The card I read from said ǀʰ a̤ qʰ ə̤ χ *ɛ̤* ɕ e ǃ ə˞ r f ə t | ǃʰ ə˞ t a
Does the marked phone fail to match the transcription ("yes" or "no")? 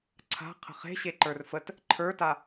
yes